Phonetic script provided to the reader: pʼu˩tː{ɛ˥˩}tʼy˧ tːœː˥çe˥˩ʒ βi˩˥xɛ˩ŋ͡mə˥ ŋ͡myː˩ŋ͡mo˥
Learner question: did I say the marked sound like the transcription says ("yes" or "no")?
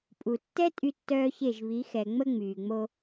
no